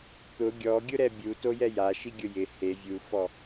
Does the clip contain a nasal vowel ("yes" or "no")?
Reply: no